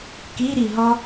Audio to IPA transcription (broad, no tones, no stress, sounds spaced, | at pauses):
k i ɾ i ɦ ɔ